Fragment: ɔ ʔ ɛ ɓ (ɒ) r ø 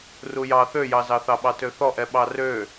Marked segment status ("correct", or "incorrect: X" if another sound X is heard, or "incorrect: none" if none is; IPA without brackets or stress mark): incorrect: ɑ